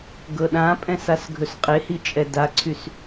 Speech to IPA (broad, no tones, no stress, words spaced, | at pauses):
ɡɤɗãpʼɛ̃s asɡʱɵsqʼehi t͡ʃʼɛdaǀʰys